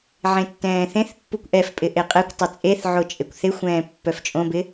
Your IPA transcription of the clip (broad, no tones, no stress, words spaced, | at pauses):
ʕẽtːɛ̃ːθẽθpːukʷ ʔɛfpʼɪ ʔeqʼɛkʷtˤɵ t͡sʼeθʕo t͡ʃʼekʷθɪxʷɛ̃ː pːœft͡ʃʼõbɪ